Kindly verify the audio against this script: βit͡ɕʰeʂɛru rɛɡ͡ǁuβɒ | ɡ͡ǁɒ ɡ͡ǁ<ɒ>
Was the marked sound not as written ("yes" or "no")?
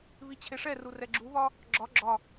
no